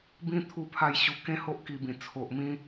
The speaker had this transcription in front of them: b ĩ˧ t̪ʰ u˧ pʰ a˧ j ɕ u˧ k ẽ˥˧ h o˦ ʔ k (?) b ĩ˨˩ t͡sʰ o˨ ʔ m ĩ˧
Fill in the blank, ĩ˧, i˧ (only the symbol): i˧